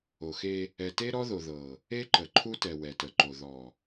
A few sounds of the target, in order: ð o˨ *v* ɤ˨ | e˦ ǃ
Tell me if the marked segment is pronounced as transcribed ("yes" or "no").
no